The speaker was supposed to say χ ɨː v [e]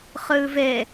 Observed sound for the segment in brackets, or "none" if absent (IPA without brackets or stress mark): e